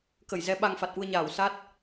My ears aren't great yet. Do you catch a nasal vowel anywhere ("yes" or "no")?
no